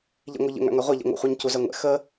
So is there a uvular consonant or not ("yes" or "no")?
yes